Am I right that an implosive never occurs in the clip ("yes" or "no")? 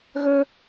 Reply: yes